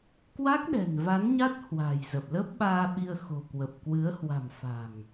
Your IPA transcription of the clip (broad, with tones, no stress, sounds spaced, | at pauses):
k w a˦˥ k̚ ɗ ɛ̤˨˩ n v a˨˦ n ɲ a˦˥ t̚ h w a̤˨˩ j z ə˨˩ p̚ l ə˦˥ p̚ ɓ aː˧ ɓ i˧ ə̯ x o̤˨˩ k w ə˨˩ p̚ k w ɨ˨˦ ə̯ h w a̤˨˩ m f a̤˨˩ ŋ